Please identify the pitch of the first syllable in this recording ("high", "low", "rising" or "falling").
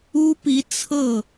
high